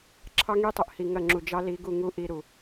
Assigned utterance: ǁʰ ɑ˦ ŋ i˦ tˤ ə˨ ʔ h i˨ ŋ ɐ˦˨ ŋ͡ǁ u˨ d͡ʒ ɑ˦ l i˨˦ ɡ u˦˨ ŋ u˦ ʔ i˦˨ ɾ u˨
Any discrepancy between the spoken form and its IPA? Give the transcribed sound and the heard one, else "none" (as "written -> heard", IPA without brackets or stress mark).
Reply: none